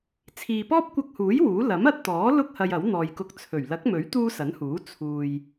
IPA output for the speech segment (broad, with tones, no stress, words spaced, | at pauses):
t͡sʰiː˨pɔː˥p̚kʷɐ˧k̚huː˨˥j wuː˨˥ lɐ˨˥mɐ˧t̚t̪ɔː˨˥ lʊ˥k̚ hɐ˧jɐ˨˥w n̪ɔː˨jkʊ˧k̚t͡sʰɵ˨˩ɥ lɐ˨˥k̚mɵ˨˥ɥt̪uː˧ sɐ˨˥nhuː˨˥ t͡sʰuː˨j